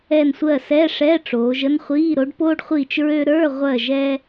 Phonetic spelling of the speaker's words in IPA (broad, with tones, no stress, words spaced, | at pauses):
ɛ˦˨nsʷɜ˦˨sɛ˧˥˧ʂɛ˧˥˧ ʈ͡ʂoː˩˧ʒə˥nχʷiː˧˥˧ ɾo˨˥ɖpoː˥ɖχʷiː˦˨t͡ʃɹø˥ ɾə˞˧˥˧ʁʷɜ˦˨ ʒɛ˥